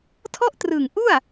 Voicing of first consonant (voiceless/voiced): voiceless